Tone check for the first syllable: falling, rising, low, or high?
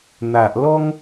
low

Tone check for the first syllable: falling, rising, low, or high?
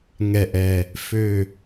low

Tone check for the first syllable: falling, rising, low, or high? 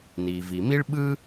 low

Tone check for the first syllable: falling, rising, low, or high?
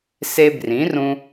high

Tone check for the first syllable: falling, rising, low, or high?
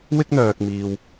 high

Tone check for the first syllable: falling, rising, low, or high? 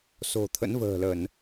low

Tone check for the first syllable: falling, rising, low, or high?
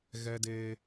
high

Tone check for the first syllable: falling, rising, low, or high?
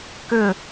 falling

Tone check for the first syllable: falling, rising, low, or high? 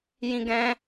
high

